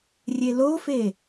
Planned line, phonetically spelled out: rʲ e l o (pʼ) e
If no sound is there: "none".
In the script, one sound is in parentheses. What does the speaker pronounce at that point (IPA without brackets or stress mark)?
f